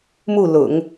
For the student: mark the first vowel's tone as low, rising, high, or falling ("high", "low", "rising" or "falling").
falling